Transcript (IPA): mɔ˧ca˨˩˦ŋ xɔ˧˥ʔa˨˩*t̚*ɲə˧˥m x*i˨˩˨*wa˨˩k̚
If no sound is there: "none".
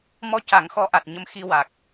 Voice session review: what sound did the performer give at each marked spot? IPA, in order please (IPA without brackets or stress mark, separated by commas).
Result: t̚, i˧